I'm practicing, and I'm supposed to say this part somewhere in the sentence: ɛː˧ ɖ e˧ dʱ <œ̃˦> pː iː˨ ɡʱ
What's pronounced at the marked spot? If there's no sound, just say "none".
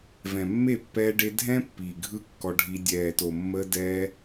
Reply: ɛ̃˦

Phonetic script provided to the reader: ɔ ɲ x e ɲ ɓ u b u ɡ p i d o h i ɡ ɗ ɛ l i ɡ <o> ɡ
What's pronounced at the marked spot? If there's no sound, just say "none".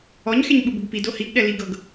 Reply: ɤ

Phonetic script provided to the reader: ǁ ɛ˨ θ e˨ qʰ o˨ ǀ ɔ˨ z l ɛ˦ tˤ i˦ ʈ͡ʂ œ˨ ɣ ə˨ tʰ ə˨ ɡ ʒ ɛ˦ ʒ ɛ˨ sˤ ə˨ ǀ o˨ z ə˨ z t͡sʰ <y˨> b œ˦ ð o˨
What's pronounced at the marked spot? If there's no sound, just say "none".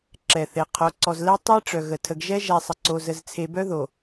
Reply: e˨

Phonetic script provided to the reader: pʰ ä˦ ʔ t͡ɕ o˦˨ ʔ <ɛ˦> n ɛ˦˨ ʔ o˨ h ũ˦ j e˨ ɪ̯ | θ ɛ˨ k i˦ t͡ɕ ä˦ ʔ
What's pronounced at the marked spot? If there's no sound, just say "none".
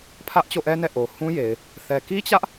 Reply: ɛ˦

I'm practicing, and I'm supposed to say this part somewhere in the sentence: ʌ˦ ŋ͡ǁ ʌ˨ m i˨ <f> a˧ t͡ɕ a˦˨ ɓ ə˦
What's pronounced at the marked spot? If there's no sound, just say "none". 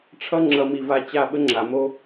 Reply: v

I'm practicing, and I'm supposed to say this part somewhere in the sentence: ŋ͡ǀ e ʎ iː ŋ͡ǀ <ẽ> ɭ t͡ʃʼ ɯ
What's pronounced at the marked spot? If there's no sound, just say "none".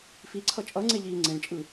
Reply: ẽ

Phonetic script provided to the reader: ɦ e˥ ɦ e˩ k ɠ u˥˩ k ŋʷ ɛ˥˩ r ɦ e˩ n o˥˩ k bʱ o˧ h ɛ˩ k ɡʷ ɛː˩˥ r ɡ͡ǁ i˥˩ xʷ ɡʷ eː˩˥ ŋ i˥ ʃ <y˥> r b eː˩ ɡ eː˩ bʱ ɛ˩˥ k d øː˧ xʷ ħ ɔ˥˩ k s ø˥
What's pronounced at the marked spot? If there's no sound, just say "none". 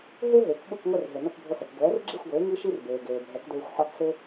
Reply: i˥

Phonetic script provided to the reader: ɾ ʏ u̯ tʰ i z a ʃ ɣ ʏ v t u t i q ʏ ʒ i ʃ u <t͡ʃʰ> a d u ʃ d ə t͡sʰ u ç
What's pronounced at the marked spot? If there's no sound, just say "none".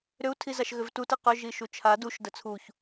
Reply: t͡ʃʰ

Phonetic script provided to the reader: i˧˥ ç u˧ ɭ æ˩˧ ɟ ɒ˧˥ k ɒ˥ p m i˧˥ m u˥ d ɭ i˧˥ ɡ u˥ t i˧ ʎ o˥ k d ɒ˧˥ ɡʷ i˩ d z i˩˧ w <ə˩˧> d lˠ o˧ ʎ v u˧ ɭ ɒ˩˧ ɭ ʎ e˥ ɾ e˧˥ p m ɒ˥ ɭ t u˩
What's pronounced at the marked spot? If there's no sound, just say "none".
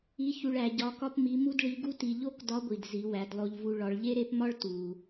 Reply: æ˩˧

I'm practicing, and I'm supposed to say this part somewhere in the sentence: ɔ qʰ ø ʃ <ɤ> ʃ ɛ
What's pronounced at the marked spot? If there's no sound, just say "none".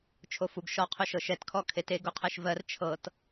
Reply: ɤ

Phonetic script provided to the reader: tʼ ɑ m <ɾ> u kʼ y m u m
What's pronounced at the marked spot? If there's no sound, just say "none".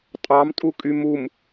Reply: tʼ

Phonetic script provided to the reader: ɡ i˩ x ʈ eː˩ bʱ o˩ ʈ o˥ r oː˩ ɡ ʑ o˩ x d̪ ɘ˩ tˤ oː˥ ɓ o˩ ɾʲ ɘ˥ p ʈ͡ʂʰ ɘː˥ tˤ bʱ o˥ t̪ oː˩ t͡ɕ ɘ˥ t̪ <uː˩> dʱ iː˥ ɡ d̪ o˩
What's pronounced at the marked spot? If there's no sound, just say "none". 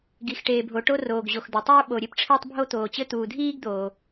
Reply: uː˩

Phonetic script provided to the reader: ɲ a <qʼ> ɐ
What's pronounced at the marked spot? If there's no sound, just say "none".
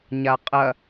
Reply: qʼ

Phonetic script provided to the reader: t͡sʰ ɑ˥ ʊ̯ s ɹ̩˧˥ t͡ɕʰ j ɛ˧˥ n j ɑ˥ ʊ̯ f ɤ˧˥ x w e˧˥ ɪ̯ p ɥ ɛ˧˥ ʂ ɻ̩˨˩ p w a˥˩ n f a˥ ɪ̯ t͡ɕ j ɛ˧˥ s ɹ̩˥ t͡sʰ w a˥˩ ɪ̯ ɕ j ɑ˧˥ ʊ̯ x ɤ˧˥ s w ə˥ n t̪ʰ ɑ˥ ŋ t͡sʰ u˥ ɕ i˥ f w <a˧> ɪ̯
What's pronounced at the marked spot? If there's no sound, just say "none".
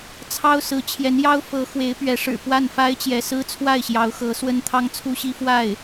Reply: a˥˩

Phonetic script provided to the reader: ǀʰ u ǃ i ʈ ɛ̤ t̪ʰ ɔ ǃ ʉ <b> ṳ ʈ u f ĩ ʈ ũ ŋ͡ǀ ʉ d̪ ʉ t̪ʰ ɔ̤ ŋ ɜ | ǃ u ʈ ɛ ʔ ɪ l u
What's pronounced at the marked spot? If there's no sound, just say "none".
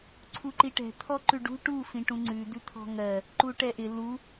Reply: ɖ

